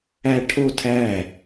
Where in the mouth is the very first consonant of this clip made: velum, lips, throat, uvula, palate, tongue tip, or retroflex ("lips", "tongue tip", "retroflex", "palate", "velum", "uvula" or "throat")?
retroflex